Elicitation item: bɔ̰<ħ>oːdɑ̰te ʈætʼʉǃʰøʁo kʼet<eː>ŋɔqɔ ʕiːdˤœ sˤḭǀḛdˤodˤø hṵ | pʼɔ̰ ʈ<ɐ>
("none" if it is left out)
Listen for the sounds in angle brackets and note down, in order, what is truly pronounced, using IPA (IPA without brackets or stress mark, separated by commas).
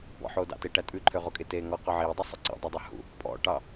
ħ, eː, ɑ